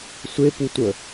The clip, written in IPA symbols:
sʷ e p u tʷ ə

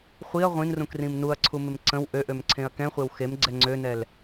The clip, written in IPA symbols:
χʷ i ɐ̯ ʁʷ ĩ n r ũ k r ĩ m n u ɐ̯ ǀʰ u m ɪ m ǀ ə̃ w ʔ ø ʔ ø m ǀʰ ẽ ɐ̯ k ɛ̃ χʷ e w x e m ɡ͡ǀ ɛ ŋ͡ǀ ø n ɛ l

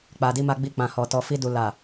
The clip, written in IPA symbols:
k͡p a˨ d i˧ m a˧ ɡ͡b i˧ k͡p ã˨ h ɔ˨ t ɔ˨ f i˧ d u˨ l a˨

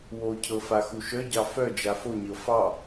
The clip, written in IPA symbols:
w o cʰ ɤ f a x u ʃ œ ɟ ɑ f œ d͡ʒ a f o ɲ ɤ f ɑ

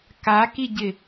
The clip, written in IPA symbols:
k a k i ɟ ɪ

